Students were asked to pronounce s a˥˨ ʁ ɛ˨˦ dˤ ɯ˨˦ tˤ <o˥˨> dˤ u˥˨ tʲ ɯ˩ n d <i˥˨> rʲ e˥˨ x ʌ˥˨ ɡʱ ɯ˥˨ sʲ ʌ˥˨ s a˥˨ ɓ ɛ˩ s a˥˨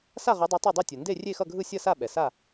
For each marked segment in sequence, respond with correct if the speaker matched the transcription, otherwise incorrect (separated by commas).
correct, incorrect